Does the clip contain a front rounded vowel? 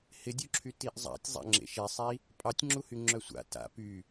yes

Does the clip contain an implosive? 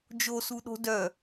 yes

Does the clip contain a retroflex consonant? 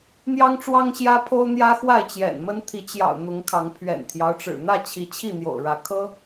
yes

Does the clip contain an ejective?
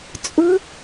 yes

